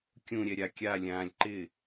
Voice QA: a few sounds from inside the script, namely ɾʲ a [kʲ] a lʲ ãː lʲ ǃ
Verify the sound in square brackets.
correct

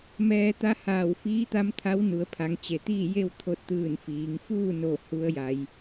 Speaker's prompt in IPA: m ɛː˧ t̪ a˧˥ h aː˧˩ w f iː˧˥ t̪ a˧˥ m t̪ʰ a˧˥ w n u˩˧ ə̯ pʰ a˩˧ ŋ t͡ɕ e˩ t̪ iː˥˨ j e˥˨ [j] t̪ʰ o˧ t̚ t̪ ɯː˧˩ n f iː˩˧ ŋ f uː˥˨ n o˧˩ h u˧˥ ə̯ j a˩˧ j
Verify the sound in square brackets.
incorrect: w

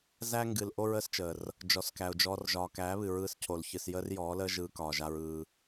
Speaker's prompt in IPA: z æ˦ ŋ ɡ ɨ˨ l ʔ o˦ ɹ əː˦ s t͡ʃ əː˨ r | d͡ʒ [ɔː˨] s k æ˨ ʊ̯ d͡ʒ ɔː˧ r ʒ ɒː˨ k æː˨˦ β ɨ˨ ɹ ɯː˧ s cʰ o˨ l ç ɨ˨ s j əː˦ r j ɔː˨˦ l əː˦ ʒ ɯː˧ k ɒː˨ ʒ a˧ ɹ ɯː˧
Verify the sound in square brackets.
incorrect: ɔ˨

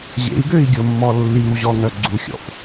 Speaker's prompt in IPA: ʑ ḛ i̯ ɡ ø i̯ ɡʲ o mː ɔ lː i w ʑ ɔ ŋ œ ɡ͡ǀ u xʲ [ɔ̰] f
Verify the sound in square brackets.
correct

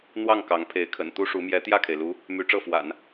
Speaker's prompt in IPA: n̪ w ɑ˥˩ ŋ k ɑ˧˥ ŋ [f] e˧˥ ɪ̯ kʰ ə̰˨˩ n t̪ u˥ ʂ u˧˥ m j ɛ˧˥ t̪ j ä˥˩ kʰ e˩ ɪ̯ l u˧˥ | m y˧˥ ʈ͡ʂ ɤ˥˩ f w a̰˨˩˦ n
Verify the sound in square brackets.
incorrect: pʰ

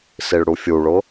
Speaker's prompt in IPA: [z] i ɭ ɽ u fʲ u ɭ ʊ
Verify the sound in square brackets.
incorrect: s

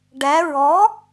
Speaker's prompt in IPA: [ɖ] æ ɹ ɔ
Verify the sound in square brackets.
correct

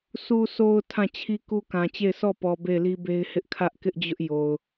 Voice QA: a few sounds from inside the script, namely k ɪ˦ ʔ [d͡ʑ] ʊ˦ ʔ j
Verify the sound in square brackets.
correct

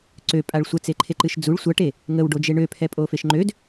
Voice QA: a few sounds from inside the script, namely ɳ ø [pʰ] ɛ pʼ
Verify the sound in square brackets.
correct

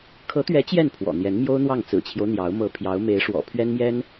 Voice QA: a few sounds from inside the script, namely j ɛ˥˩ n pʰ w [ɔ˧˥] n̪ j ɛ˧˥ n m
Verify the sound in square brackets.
incorrect: ɔ̰˨˩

